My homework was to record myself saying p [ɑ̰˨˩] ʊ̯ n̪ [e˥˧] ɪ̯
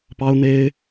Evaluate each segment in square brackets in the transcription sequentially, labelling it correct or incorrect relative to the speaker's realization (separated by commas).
incorrect, incorrect